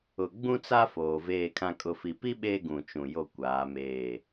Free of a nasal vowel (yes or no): no